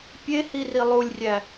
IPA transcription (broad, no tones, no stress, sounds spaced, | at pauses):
pʲ e h i r i lˠ u lʲ rʲ æ